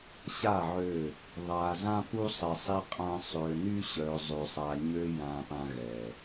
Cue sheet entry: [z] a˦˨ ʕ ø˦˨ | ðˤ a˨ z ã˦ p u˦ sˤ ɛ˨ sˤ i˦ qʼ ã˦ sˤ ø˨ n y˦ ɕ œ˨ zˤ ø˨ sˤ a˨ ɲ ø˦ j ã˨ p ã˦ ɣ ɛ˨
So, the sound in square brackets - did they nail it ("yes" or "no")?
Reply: no